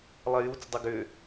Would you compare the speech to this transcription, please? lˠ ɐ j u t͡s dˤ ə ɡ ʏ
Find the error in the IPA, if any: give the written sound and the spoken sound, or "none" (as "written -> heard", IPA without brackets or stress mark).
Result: none